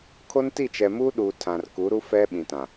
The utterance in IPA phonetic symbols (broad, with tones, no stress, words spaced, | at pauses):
kʰo˦nti˦˨t͡ʃɛ˨ muː˦ɗuː˨ tʰã˨rku˨˦ɾu˦ fɛ˦ɓĩ˨tã˨